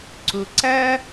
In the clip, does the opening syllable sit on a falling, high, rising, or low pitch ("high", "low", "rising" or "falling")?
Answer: low